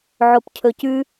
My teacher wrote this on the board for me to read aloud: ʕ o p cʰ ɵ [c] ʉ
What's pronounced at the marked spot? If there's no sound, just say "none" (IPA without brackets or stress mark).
c